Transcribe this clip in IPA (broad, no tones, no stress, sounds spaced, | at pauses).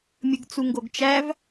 mʲ ɯ ɡ t͡s u ŋ ɡ o ɡ t͡ʃ æ v